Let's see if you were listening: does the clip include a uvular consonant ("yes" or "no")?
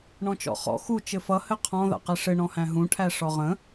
yes